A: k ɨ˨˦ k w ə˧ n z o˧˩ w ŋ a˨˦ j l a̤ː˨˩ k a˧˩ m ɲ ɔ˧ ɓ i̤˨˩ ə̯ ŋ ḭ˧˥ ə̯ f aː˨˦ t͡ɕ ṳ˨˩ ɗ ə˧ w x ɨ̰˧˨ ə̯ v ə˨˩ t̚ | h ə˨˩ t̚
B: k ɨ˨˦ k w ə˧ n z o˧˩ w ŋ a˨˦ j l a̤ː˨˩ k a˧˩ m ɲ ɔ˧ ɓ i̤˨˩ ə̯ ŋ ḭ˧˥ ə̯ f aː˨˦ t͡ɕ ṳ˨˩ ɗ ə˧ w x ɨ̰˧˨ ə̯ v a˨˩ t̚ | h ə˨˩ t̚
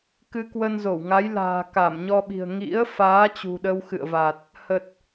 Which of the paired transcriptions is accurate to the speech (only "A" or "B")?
B